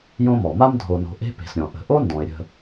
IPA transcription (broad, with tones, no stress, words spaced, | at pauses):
jõ˦mɔ˩ma˥m dʱo˨no̤˨ʔe̤˦ pe̤˩sɾʲɔ̃˩ ʔə̤˨ ʔo˦ndɔ̃˩ɪ̯ɾʲə̤˨